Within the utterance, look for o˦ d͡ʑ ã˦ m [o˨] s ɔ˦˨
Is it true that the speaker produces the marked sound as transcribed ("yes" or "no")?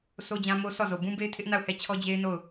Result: no